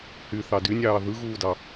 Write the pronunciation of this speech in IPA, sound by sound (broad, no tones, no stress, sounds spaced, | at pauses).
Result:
h y θ ɑ d y nʲ ɑː ð ɯ ɣ uː d ɑ